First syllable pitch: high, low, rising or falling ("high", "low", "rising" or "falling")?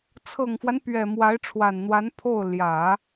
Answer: low